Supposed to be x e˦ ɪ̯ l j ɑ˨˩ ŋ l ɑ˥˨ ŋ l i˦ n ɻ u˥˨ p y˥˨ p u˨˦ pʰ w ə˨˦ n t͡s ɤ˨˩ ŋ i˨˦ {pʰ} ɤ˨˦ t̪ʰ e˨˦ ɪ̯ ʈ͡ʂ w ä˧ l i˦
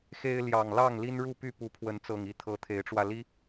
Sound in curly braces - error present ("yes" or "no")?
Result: yes